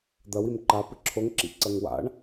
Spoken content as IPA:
d̪ ɐ w i m ǃ a p ɨ ǁʰ o ŋ ǁ ḭ ǀ ɐ ŋ w a̰ ɳ

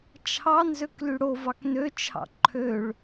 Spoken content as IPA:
t͡ʃʰ ɑ n z ø k l y ɽ o v ɑ k n ø t͡ʃʰ ɑ̰ ǃʰ ø ɭ

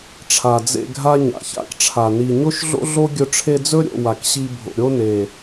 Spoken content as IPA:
ʈ͡ʂʰ a˨ d͡z ḛ˧ ɡʱ a˦ ɲ a̰˨ ç a̰˧ k ʈ͡ʂʰ a˨ n i˨ ɲ o˦ ʃ ɮ o̰˦ ɮ o˦ ɡʲ ɵ˧ ʈ͡ʂʰ e˧ d͡z ɵ˦ ɾʲ o̰˦˨ w a˨ k ɕ i˧ bʱ o̰˨ ɾʲ o˦ n e˨

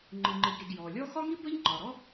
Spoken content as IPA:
ŋ͡ǃ ɨ˩ ŋ͡ǃ ɨ˩ ɡ ɾ i˩ ɡ j ɔ˩ lʲ ɔ˥ x ɒ˥ ŋ i˥ b ə˥ ʎ ŋ͡ǃ ɒ˩ ɾ ɔ˥

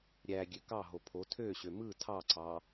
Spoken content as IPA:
ɾʲ æ ɡʲ ø k ɑ ɦ o pʰ o tʰ ø ɕ ø m ɯ tʰ ɑ ǀ ɑ

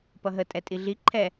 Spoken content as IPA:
p ʌ ɦ ə tʼ ɛ tʼ i ɮ i ǃʰ ɛ

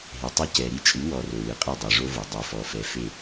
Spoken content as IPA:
ɦ e˨ tˤ o˦ c ɛ˨ ɾ i˦ t͡ʃʼ ɨ˨˦ w ɔ˨ r o˨ w ɨ˨ qʼ ɨ˦˨ dˤ e˨ ʐ o˦ v o˨ dˤ o˨ f ɔ˨ f ɛ˨ f e˦˨

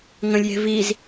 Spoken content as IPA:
ŋ ə̃ lʲ j e̤ v i z

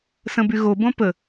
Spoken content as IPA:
s ə̃ b y ɣ o b õ p ə

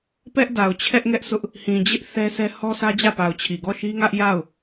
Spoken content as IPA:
p ɛ˦ ʔ d a˨ ʊ̯ t͡ɕʰ ɛ˦ ʔ ŋ ɛ˦ ʔ sʰ ʊ˦ ʔ | h ĩ˨ d͡ʑ ɪ˦ ʔ θ ɛ˦ sʰ ɛ˦ h ɔ˦ sʰ ä˦ d͡ʑ ä˦˨ p a˨ ʊ̯ t͡ɕʰ i˨ ɡ ɔ˦˨ ʃ i˦ ŋ ä˦ ʔ j a˦˨ ʊ̯

